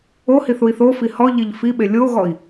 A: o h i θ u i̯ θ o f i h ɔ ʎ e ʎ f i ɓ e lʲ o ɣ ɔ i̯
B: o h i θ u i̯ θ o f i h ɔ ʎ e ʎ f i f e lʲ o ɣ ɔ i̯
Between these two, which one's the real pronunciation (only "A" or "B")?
A